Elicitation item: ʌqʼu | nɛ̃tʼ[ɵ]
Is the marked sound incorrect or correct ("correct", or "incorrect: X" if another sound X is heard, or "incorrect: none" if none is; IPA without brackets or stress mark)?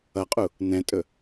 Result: correct